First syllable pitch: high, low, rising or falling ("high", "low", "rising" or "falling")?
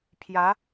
rising